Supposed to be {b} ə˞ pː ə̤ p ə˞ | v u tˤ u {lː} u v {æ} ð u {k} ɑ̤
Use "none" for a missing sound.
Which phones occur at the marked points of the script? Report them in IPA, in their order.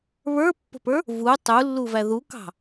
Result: β, lː, æ, k

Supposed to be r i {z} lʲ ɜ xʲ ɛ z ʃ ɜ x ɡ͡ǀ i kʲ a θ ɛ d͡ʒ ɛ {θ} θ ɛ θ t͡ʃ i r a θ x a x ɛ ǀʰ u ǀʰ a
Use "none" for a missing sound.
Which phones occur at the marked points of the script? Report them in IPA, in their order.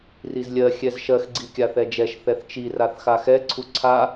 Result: z, ʃ

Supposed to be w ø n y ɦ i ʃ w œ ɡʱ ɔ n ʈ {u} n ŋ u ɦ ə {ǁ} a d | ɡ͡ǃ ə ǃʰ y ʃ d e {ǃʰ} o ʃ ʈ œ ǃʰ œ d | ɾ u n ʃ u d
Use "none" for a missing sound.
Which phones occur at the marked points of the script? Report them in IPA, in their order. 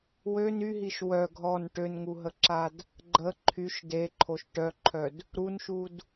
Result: ø, ǁ, ǃʰ

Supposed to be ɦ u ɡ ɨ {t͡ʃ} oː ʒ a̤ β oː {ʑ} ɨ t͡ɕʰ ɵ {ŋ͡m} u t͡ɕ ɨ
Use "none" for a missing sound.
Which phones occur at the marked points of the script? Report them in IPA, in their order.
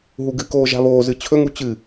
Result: k, z, ŋ

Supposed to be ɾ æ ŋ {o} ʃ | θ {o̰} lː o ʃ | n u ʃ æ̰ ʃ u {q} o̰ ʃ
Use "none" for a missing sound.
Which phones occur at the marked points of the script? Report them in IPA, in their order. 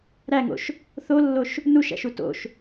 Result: o̰, o, t

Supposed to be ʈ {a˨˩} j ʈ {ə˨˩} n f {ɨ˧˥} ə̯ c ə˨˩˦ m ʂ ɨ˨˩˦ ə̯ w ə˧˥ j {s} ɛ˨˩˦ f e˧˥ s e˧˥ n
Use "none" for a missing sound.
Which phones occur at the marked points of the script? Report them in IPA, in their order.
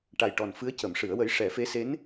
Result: a˨˩, ɔ˨˩, ɨ˧˥, ʂ

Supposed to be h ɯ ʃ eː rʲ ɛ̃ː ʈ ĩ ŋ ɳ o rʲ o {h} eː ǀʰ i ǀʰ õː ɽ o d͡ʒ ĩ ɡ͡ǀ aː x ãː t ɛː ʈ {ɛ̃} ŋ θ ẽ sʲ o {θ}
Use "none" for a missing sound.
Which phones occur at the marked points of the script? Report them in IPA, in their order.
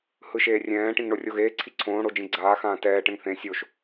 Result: ɣ, ɛ̃, ʃ

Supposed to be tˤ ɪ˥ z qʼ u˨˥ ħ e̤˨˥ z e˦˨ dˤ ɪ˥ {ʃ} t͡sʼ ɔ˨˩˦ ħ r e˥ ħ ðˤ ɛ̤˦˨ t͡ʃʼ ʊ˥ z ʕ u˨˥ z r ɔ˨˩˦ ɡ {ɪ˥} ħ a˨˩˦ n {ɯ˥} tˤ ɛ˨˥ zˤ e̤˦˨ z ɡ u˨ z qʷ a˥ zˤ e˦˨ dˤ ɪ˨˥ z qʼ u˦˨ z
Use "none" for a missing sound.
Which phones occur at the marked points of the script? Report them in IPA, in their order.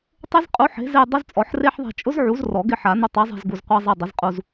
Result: z, ɪ˦˨, ʊ˥

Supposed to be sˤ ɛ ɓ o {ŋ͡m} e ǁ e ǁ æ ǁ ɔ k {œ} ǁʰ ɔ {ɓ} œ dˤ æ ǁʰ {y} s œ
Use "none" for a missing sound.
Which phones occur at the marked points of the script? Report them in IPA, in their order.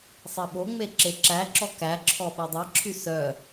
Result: ŋ͡m, æ, ɓ, y

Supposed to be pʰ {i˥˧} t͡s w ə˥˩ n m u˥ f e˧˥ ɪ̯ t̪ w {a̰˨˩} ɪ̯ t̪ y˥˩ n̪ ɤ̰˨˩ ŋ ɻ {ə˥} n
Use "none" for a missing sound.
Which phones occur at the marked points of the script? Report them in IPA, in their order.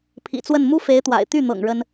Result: ḭ˨˩, a̰˨˩, ə˥

